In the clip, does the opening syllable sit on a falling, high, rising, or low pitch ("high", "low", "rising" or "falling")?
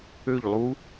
falling